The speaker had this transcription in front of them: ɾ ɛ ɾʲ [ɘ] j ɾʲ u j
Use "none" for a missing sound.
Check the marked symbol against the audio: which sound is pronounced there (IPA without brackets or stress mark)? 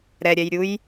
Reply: ɛ